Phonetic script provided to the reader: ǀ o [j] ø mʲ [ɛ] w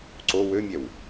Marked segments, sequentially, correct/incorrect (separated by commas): incorrect, correct